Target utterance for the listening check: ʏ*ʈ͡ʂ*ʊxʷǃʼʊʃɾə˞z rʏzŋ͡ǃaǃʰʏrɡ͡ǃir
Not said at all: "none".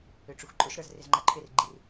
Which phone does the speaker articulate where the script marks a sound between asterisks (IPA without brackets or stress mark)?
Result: ʈ͡ʂ